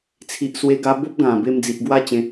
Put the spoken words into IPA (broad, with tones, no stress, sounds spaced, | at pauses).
t͡sʰ i˨ ʔ s w e˧ ɡ a˧ b o˦ p̚ ɡ ã˨˩ b e˧ m d͡z i˨ ʔ ɡ w a˥˧ t͡ɕ ẽ˧